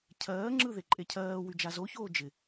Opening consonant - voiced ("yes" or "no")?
no